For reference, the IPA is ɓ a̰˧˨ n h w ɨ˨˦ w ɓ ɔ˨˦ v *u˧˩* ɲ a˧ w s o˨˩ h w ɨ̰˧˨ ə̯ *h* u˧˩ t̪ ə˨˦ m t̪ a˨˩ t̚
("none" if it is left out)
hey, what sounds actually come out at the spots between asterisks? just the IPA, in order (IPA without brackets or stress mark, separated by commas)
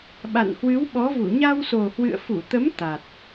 u˧˩, f